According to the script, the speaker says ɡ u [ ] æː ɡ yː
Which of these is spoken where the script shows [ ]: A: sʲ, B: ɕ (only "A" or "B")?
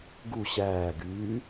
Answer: B